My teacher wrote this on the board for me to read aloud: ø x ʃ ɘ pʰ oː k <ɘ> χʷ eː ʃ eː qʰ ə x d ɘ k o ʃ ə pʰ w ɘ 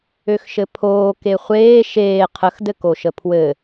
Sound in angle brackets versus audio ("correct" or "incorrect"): incorrect